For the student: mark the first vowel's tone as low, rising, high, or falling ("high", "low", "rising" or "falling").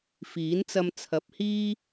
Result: rising